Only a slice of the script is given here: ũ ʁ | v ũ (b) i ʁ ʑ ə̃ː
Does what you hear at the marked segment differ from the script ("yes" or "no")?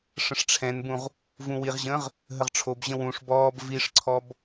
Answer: yes